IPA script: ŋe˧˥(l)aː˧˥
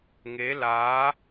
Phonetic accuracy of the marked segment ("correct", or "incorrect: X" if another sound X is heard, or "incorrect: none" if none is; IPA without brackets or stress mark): correct